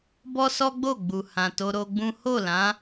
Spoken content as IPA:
b ɔ˦ s ɔ˦ ɡ͡b o˦˨ ɡ͡b u˨ h ã˨ t o˧ ɾ o˧ ɡ͡b ũ˦ h o˦˨ l ã˨˦

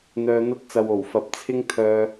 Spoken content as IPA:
n̪ œː˨ n̪ ɐ˧ t̚ t͡s ɐ˨ w o˨˩ w f ɐ˨ p̚ t͡sʰ ɪ˥ ŋ t̪ʰ œː˥

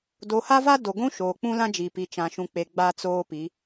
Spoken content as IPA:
d o˨ h a˦ v a˦ d o˨ ɡʷ ũ˦ ʃ oː˨ k͡p ũ˦ l ã˦ d͡ʒ i˨ p i˨ t͡ʃ ã˨ ʃ ũ˨ k͡p e˨ ɡ͡b a˦ t͡s oː˦ p i˨˦

